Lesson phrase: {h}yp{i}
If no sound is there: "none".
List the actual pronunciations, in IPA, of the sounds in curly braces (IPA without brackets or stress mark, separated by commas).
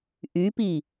ʔ, i